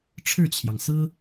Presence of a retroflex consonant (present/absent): present